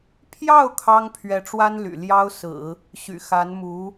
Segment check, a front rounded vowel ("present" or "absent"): present